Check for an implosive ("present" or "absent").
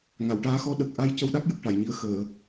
present